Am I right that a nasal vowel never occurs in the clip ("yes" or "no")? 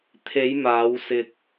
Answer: yes